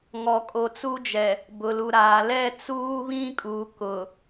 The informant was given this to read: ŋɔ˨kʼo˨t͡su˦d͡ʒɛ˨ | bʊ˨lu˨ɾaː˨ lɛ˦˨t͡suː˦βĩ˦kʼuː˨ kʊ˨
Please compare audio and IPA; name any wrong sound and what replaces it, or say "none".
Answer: none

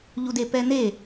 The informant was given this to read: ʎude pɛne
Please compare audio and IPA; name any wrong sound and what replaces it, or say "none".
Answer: none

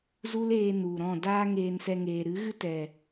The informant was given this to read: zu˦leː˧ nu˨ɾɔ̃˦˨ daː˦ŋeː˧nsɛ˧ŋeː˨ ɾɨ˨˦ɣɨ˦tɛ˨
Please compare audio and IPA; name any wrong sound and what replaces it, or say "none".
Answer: none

